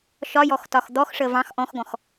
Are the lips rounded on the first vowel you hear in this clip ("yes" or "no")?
yes